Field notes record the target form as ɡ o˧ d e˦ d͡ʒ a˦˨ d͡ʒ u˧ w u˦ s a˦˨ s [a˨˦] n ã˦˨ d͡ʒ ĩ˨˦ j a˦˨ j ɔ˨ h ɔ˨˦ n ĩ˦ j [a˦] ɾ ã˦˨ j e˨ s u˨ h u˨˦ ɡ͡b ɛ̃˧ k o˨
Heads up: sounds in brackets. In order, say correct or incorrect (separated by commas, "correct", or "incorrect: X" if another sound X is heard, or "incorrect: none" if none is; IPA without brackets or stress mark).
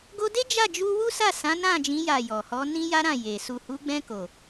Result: incorrect: ã˨˦, correct